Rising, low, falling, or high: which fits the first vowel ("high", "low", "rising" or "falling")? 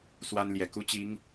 high